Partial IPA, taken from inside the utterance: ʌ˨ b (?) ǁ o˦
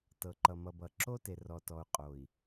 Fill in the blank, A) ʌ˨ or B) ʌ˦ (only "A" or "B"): A